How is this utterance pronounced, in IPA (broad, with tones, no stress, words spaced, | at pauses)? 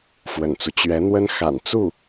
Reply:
fwə̰˨˩nt͡su˦ t͡ɕɥɛ˧˥n̪wə˥n xa̰˨˩n t͡su˥˩